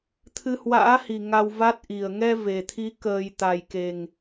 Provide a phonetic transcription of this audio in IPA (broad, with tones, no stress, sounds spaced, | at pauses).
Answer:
t̪ʰ ɨ˧ h w a̰ː˧˥ h i˨˩ ŋ a˧ w v a˦˥ t̚ ʔ i˨˩ ə̯ ŋ ɛ˧ v e˨˩ t̪ʰ i˨˦ k əː˨˩ j t̪ a˨˩ j k e˨˩ ŋ